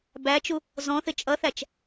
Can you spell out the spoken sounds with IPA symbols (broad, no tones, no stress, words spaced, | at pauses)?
bæt͡ʃu | zɔ̃θɪ t͡ʃʼʌθæt͡ʃ